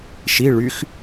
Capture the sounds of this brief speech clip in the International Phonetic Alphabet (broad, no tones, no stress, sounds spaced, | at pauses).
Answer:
ʃ i ɭ y x